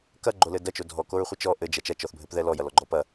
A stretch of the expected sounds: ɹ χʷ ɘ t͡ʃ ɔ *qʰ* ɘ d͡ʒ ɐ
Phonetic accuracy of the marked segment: incorrect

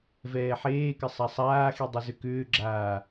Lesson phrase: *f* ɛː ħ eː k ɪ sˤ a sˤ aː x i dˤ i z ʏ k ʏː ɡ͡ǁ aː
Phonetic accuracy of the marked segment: incorrect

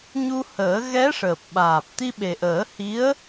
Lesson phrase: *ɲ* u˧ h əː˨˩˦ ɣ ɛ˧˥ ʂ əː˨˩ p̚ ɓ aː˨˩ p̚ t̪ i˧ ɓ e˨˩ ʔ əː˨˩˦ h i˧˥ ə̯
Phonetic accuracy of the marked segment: correct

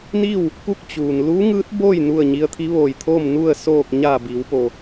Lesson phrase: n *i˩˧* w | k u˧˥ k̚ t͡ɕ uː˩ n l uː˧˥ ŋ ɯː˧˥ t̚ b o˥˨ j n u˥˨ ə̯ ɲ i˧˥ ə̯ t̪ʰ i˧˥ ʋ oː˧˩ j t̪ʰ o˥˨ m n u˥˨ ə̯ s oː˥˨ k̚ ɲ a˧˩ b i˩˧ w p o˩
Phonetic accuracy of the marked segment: incorrect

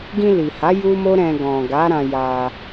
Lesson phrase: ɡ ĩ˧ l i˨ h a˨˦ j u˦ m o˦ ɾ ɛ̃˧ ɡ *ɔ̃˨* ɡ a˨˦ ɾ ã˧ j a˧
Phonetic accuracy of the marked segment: correct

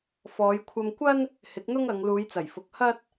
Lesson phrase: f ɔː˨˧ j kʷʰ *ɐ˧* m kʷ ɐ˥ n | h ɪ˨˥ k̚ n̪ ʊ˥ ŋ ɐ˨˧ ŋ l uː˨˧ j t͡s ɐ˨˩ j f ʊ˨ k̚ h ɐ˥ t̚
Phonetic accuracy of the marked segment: correct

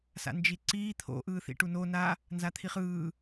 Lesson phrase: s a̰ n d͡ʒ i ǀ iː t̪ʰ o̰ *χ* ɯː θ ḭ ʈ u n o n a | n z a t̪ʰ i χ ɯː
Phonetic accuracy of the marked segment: incorrect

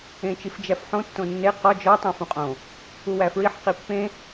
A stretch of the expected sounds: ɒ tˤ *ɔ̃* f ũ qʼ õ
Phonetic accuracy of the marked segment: incorrect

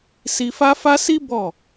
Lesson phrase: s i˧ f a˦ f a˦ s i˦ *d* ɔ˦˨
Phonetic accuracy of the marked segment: incorrect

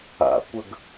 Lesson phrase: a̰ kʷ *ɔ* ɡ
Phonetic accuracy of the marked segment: incorrect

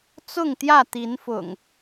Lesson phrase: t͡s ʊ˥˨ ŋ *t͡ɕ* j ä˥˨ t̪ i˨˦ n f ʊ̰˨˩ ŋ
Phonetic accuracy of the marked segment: incorrect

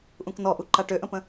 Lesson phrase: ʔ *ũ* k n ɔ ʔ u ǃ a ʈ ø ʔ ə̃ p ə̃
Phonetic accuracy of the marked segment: correct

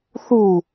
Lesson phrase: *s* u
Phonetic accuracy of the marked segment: incorrect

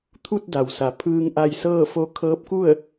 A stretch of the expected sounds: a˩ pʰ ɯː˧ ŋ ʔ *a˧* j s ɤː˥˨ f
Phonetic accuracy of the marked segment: correct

